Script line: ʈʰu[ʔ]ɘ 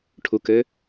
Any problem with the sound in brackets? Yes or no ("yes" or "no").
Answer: yes